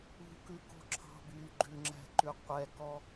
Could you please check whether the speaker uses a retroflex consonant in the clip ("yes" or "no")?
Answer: no